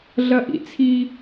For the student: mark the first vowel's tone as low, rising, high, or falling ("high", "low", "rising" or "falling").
high